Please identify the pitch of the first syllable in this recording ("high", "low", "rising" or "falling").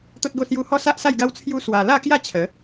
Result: high